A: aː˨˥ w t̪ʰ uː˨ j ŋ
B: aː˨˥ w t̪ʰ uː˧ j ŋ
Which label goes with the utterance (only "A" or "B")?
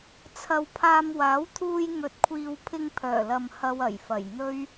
B